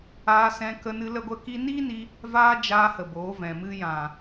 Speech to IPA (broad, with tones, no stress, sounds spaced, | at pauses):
aː˧ s ɛ̃˧ k ə˧ n ɨ˧ l ə˧ ɡʷ ə˧ k i˧ n iː˦ n i˧ | v aː˦ d͡ʒ aː˧ h ə˨ b oː˨˦ v ɛ̃˨ m ɨ˧ j ã˨